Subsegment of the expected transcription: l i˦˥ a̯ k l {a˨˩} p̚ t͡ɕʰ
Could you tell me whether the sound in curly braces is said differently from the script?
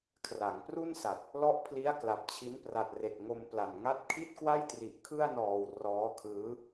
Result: no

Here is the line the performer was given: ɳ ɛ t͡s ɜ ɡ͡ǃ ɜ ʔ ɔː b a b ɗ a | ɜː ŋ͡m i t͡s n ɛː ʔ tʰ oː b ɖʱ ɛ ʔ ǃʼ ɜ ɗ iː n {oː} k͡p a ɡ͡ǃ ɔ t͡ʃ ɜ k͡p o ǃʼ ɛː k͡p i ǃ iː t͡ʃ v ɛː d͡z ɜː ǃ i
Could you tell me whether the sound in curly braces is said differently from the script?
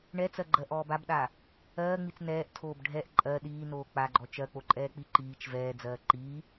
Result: no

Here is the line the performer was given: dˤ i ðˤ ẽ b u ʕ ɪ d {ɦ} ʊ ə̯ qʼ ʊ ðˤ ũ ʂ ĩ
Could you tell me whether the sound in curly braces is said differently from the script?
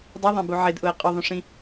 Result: yes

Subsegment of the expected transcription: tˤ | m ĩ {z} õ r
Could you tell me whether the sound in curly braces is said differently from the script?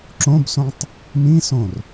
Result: yes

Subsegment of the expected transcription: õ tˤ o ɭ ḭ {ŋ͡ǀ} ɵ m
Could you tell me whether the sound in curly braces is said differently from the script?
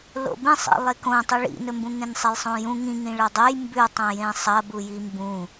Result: yes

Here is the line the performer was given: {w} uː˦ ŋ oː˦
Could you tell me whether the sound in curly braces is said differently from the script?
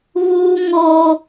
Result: yes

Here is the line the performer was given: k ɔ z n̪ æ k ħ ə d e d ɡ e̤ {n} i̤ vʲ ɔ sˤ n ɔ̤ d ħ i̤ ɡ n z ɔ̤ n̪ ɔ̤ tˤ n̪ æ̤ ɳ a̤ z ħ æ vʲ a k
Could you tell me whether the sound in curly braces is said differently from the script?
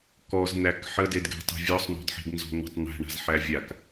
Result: yes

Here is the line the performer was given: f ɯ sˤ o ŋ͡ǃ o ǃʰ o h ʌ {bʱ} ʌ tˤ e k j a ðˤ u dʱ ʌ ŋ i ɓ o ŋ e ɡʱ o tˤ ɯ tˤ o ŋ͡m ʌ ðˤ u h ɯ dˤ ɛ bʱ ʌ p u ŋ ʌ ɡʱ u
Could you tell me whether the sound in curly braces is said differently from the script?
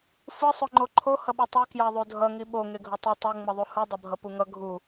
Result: yes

